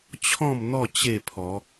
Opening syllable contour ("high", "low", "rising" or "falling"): falling